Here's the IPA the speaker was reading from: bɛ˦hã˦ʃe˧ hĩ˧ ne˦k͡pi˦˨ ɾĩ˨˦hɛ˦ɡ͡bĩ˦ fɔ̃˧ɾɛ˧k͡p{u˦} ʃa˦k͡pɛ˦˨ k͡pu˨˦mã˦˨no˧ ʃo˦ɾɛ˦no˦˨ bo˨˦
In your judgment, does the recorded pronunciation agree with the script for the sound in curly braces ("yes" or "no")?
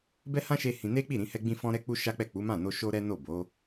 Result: no